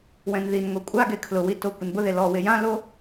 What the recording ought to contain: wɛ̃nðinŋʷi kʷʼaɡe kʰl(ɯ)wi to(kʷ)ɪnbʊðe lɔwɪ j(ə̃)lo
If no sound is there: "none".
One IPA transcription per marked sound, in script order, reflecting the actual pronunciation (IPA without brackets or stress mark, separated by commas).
ʊ, kʷ, ã